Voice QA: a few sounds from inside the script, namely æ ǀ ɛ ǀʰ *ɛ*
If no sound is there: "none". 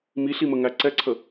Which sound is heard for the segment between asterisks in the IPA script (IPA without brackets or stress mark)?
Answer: ə